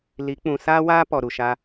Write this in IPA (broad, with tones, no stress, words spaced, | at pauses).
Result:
li˨˦k͡pũ˨ saː˦waː˦ pɔ˨ɾu˨ʃa˧